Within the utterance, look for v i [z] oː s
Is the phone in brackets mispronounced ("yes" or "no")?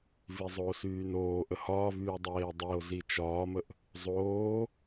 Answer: yes